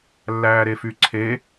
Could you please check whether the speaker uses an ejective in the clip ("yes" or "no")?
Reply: no